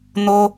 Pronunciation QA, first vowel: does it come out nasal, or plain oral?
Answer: oral